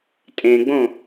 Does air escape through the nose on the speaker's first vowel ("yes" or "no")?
yes